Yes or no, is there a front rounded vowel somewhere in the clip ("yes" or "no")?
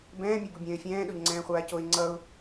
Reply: no